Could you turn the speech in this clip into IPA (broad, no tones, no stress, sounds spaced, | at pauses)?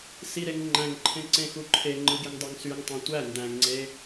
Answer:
s i ɾ e ŋ ŋ͡ǃ æ̃ ŋ ǃʰ ẽ ǀ ẽ x u ǃʰ e ŋ͡ǃ ɯ ɡ i ŋ dˤ ø ŋ s y ŋ tˤ ɑ̃ tʷ æ n d æ̃ ŋ ŋ͡ǀ e